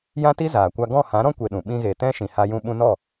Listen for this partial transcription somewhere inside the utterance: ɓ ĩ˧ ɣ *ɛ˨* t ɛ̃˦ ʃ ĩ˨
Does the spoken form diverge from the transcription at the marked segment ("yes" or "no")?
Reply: yes